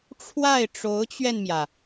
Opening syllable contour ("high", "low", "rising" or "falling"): falling